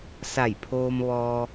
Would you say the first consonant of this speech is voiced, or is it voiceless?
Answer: voiceless